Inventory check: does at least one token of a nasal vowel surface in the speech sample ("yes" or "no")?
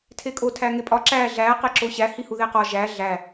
no